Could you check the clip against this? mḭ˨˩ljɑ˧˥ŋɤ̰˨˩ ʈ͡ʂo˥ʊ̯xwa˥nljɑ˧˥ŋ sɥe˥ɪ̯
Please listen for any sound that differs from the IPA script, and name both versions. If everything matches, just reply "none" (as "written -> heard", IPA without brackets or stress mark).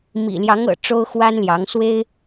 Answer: ɥ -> w